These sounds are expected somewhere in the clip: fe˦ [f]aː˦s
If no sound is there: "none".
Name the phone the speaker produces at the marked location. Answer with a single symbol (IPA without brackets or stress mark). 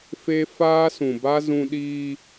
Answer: f